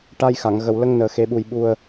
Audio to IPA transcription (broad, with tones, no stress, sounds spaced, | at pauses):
ʈ a˧ j x a˨˩˨ ŋ ɣ ə˨˩ w l ə˧ ŋ n əː˨˩ x e˨˩˦ ɓ u˨˩ j ɓ u˨˩ ə̯